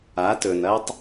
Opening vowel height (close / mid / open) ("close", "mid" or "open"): open